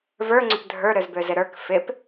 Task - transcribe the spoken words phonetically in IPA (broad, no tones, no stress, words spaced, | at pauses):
və˞ ŋ͡ǀʏpdʱə˞ ɾøzbøzɪɾə˞k fɪp